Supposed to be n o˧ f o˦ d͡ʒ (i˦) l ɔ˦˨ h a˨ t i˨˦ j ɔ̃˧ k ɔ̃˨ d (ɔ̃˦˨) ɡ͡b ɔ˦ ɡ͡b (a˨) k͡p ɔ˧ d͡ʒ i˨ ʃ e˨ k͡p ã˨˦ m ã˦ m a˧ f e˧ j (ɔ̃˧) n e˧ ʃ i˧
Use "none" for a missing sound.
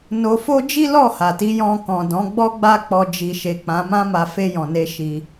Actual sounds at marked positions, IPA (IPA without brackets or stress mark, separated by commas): i˦, ɔ̃˨˦, a˦, ɔ̃˨